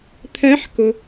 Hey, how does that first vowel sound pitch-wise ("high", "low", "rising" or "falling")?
rising